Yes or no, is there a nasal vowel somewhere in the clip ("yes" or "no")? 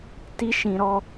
yes